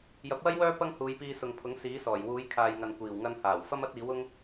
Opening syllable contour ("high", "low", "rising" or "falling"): rising